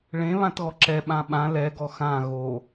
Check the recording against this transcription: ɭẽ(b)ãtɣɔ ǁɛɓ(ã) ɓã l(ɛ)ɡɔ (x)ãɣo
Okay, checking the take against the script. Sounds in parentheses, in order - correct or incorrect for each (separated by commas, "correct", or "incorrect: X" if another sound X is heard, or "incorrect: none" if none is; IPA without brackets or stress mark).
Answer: incorrect: β, correct, correct, correct